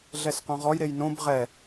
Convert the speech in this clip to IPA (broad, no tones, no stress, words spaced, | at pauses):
ɮɛsqõʁɔjɾej nõb ʁɛ